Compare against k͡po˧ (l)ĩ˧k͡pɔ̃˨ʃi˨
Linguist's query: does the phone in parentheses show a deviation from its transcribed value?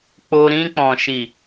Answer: yes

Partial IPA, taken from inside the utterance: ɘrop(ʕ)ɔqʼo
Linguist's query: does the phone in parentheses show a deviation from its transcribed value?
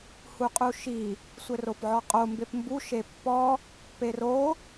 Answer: no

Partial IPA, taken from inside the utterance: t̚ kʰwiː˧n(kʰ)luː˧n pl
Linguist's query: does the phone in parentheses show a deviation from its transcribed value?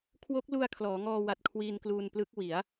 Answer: yes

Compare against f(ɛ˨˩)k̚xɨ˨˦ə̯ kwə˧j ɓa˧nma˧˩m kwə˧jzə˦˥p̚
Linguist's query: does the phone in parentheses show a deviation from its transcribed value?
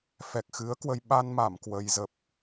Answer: no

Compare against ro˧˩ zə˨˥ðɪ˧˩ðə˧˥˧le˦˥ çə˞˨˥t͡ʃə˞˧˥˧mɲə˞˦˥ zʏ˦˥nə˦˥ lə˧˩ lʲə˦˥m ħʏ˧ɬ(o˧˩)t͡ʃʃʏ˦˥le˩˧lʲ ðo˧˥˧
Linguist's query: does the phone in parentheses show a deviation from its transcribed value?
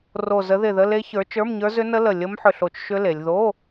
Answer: no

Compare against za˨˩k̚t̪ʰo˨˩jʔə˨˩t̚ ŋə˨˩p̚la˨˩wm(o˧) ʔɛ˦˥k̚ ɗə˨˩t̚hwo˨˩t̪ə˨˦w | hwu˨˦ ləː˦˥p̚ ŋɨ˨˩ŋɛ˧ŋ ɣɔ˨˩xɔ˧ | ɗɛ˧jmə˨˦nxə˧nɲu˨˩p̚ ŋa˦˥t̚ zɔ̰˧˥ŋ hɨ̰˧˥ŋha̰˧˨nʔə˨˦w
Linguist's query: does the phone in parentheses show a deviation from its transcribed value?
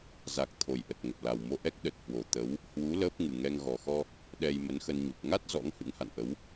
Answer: no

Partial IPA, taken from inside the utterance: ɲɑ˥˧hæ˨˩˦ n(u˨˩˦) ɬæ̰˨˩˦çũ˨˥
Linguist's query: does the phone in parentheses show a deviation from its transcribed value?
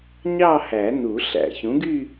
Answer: no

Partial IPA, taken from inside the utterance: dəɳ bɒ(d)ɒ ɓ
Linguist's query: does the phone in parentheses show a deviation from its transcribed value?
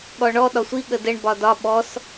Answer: no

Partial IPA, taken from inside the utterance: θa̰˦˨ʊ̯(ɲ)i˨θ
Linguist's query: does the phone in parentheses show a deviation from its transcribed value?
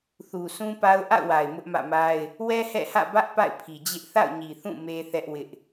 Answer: no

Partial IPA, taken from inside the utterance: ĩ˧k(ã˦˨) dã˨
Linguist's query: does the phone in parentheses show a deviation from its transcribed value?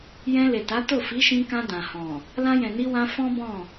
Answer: yes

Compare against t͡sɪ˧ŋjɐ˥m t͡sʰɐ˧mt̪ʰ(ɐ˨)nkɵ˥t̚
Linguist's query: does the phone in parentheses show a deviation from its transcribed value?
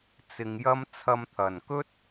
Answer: no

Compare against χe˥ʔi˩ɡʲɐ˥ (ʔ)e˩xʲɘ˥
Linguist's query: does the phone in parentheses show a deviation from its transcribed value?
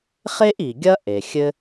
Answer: no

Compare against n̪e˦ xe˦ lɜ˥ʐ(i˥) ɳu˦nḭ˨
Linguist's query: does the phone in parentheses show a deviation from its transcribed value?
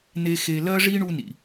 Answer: no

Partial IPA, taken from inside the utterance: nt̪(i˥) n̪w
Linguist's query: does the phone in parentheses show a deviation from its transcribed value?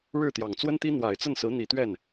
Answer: no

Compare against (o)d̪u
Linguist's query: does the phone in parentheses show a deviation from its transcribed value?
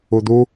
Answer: yes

